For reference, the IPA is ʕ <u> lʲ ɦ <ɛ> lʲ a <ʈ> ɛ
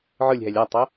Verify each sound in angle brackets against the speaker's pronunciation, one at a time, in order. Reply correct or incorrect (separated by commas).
incorrect, correct, incorrect